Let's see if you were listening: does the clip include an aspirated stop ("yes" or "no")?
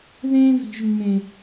no